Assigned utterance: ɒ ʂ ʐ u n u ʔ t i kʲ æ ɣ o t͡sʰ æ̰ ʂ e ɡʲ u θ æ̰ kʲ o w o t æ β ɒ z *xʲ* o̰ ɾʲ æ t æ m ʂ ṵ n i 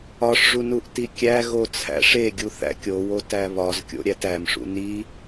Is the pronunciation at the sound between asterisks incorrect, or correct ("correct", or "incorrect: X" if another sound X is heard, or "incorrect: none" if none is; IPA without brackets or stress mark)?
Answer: incorrect: kʲ